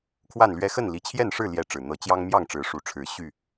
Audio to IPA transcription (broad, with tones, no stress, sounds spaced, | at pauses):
kʰ w a˥˨ n l ɥ ɛ˦ x ə˥˨ n l i˨˩ t͡ɕʰ j ɛ˥˨ n ʂ ɻ̩˥˨ l j ɛ˥˨ ʈ͡ʂ ɻ̩˨˩ n̪ ɤ˨˦ t͡ɕ j ɑ˦ ŋ m j ɑ˥˨ ŋ ʈ͡ʂ ɻ̩˨˦ ʂ u˨˩ ʈ͡ʂʰ ɻ̩˨˦ ɕ y˥˨